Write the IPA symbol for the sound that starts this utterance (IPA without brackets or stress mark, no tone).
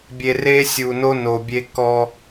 bʲ